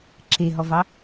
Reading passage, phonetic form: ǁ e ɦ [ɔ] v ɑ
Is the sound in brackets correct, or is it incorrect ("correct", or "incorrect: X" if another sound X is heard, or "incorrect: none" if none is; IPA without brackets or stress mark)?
correct